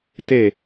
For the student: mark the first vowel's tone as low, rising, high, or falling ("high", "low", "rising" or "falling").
falling